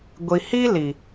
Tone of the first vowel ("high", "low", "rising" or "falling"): low